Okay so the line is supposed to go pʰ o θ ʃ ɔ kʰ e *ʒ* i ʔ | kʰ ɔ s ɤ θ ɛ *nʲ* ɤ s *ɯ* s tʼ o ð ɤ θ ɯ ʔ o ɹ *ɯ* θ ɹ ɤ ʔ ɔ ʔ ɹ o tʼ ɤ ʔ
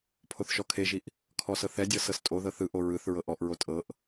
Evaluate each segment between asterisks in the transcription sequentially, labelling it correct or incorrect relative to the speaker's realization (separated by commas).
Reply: correct, incorrect, incorrect, correct